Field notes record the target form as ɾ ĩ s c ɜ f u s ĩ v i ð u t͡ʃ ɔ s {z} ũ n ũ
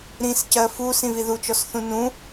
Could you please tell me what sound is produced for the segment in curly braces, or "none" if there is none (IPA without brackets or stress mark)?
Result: θ